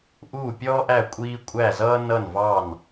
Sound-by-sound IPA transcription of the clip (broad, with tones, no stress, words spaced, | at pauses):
ʔuː˥˨pʲɔː˥ʔæ˥˨ kʷʼiː˥ kʷʼæ˥˨zʌː˥ nʌ˥˨nvɑ˥˨n